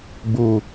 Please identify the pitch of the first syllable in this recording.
low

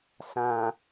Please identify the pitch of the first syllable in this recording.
low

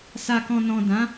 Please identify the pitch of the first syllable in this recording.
low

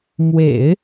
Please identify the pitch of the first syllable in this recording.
low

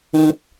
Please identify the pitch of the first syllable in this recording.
high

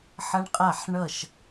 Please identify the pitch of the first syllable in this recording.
high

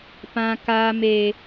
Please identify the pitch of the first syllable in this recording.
high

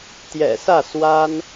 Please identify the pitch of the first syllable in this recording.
low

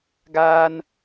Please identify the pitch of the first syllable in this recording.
high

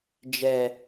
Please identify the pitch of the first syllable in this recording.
low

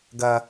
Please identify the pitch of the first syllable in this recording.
high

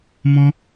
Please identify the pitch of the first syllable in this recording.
high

